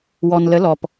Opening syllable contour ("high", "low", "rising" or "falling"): low